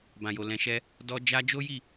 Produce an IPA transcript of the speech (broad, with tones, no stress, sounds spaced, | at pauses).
b ã˨ j o˨ l ɛ̃˨ ʃ ɛ˧ | d ɔ˦ d͡ʒ a˦ d͡ʒ o˦ j i˦˨